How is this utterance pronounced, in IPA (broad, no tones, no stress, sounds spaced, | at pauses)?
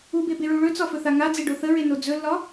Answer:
u b e b e ɹ u ɭ ɵ t͡s ɒ f ɵ θ a ŋ a d͡z e ɖ o θ ə ɹ e n o d͡z ɵ lː ɒ